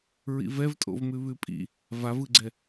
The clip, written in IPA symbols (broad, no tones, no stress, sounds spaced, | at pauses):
ɹ ḭ v ɛ v tʼ o̰ v m ʉ β ʉ pʼ ḭ | v a v ɯ ɡ͡ǀ ɛ